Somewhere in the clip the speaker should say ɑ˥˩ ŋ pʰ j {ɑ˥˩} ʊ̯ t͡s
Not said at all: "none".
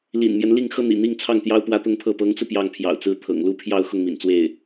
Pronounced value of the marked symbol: ɑ̰˨˩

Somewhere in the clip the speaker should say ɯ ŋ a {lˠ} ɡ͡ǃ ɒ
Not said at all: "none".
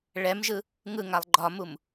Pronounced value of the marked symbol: lˠ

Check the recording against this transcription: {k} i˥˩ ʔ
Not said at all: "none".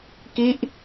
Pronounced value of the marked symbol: k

